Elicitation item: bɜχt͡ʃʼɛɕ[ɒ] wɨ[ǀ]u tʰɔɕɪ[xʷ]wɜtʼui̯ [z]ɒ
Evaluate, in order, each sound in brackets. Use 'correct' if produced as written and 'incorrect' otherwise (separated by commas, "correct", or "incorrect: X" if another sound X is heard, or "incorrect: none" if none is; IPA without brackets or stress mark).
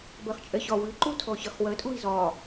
correct, incorrect: ǃ, incorrect: χ, correct